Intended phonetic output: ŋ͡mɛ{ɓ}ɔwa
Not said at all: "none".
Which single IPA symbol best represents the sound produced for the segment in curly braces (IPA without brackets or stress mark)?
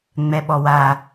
ɓ